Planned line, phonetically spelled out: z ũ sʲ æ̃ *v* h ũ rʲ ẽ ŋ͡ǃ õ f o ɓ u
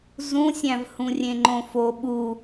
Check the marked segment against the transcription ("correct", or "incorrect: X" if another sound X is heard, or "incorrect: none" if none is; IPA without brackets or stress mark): correct